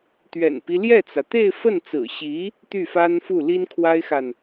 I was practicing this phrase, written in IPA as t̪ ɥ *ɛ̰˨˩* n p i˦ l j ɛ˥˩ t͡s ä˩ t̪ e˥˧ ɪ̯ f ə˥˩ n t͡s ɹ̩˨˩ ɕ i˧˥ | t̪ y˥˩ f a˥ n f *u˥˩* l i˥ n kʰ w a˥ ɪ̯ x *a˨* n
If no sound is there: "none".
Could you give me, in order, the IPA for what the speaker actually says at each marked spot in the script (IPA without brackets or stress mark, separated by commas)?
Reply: ɛ̰˨˩, u˥˩, a˨